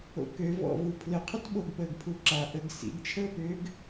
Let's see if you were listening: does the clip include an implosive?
yes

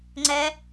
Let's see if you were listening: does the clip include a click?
yes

